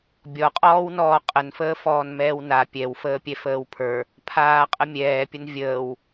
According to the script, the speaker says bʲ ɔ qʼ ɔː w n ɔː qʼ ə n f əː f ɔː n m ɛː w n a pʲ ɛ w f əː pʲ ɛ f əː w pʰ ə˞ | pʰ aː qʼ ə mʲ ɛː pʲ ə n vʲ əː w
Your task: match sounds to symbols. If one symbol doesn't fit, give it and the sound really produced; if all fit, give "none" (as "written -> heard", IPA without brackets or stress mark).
none